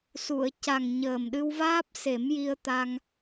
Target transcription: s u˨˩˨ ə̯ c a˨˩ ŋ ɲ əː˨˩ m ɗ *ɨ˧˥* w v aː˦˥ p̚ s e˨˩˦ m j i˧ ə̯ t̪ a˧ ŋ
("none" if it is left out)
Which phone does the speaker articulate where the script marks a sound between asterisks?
ɨ˧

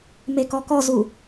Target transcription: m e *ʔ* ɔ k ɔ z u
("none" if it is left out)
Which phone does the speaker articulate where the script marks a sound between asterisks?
k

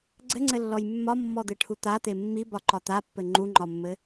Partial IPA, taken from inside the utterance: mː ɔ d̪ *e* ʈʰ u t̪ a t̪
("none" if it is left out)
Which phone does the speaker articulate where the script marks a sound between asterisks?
e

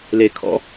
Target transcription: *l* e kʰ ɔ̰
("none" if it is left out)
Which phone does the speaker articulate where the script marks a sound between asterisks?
l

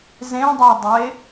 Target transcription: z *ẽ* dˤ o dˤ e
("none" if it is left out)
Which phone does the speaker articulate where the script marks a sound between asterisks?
ẽ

